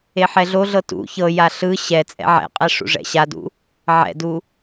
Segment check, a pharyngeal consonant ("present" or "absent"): present